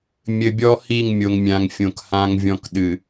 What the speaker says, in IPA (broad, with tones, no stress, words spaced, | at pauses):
mʲɘ˨bʲɔ˦ hi˦˨ŋmʲo˨ŋmʲã˨ŋfʲõ˨k hã˦ŋvʲɔ̃˦k ɗɨ˨